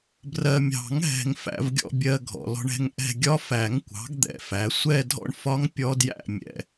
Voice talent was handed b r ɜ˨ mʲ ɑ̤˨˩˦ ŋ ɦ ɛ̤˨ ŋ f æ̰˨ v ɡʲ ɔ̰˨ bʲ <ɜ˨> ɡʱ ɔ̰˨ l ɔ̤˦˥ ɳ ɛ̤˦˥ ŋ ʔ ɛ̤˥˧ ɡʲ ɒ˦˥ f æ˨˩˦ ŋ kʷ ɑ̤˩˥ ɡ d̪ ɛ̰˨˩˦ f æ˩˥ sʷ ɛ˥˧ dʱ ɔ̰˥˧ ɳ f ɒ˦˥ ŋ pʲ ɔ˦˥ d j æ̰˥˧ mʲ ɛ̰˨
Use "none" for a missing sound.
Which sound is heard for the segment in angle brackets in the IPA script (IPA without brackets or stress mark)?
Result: ɜ˨